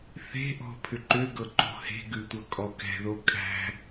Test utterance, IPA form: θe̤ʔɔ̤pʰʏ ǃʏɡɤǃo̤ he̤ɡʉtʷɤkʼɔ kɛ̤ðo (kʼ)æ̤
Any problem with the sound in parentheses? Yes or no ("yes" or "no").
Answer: no